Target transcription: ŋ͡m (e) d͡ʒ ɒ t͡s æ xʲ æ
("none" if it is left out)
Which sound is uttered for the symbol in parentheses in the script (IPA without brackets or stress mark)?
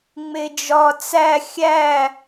e